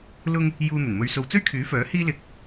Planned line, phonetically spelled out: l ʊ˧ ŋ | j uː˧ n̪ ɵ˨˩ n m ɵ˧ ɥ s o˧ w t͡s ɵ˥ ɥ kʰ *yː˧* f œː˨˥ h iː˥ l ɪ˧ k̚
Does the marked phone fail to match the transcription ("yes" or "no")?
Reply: yes